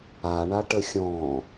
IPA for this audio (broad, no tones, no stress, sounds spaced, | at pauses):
a ɳ a ʈ ə xʲ ɔ̃